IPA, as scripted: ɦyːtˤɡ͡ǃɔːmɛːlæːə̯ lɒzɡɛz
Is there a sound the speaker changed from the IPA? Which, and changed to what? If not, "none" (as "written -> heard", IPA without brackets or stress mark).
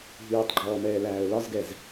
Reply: none